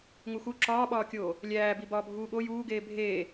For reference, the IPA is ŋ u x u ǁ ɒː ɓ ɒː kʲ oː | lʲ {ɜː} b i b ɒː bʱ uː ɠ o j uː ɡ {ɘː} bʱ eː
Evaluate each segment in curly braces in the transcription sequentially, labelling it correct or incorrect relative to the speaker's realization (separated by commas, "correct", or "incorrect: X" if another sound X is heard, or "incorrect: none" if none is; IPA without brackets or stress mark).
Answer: incorrect: æː, incorrect: eː